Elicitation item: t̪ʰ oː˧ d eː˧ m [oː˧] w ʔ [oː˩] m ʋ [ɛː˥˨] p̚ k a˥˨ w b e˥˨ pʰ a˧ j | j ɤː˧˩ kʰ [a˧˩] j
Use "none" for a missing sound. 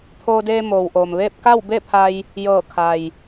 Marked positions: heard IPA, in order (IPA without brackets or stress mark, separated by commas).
oː˩, oː˩, eː˥˨, a˩